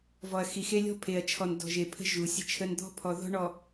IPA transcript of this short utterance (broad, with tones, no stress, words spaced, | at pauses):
vɔ˨ɐ̯xi˨xe˦ lʲɔ̤˦ pʰe˨ɐ̯t͡ʃʰɔ˨n dɔ̤˨ʒe˨ pʰə̤˦ʒu˨ sʲə̤˦t͡ʃʰə˦n d̪ɔ̤˦pʰɔ˨ ðɔ̤˦ɳɔ˨